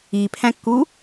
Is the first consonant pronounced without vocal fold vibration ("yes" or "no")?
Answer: yes